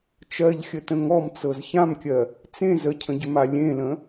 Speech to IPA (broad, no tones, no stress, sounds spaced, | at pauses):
t͡ʃ ɜ ʎ xʲ ə t ə̃ ŋ ɔ m t͡s ɤ z ç ã m kʲ ɜ | t͡s ẽ z ə cʰ ə̃ ɟ ʏ m a lʲ ẽ l ə̃